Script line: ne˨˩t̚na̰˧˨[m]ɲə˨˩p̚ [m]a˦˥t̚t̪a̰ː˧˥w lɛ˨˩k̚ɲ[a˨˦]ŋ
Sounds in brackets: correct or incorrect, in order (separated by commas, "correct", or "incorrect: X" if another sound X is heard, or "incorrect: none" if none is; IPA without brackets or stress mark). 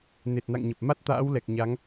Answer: incorrect: ŋ, correct, correct